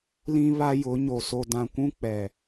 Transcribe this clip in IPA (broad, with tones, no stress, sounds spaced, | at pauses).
l ĩ˦ β a˦ j ʊ˨˦ ɲ o˨ s o˨ d ã˨ kʷ ũ˦ k͡p ɛ˨